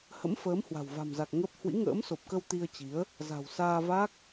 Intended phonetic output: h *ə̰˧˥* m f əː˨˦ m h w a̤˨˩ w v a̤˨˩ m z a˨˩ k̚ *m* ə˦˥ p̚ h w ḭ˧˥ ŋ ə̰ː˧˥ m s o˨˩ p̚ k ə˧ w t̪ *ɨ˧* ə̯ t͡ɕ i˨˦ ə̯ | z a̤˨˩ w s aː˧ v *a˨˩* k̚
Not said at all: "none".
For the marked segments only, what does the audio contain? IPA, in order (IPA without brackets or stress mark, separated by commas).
ə̰˧˥, ŋ, i˧, a˦˥